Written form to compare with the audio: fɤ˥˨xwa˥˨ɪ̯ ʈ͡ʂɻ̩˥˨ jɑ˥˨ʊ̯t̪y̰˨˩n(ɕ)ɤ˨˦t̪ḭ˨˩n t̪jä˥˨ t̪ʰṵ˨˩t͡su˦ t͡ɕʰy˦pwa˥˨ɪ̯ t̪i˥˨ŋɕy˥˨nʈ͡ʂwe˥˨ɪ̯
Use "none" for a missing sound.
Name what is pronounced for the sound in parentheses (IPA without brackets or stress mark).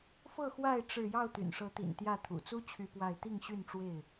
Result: ʂ